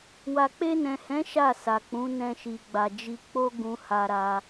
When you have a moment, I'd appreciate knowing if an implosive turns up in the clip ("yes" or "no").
no